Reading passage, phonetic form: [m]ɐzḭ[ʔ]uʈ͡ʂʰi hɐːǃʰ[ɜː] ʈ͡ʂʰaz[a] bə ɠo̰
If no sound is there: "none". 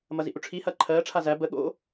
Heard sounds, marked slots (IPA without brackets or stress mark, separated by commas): m, ʔ, ɜː, æ